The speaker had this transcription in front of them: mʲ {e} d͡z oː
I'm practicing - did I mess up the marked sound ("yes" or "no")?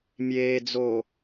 yes